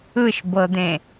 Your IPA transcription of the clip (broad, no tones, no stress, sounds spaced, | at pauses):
ɯ ʃ b ɤ d̪ ẽ